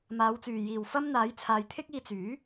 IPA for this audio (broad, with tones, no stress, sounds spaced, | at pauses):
m aː˨˧ w t͡s yː˨ j iː˨ w f ɐ˥ m n̪ aː˨˥ j t͡sʰ aː˨˧ j t̪ʰ ɪ˥ k̚ iː˧ t͡s yː˨˥